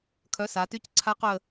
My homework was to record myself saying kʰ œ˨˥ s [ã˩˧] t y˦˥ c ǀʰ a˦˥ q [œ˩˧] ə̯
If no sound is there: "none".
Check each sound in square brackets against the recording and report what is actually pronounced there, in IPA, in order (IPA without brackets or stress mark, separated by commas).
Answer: a˩˧, œ˦˨